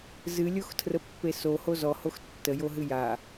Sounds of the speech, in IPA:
zɨlʲoxtʰrəpːe soho zɔhox tːəjoɦɨ ja

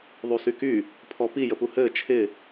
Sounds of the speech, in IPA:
ðˤusyky | pʰɔpi jəpuhɘː t͡ʃʰɪ

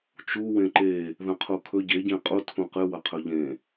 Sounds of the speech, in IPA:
t͡ʃuwẽ ǃe | ðɐ̃qʰukʰɵ ɟeɟẽ qʼutʰũ qɨwɐqʰɵ ʎẽ

